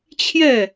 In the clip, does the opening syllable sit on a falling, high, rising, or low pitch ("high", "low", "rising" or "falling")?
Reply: falling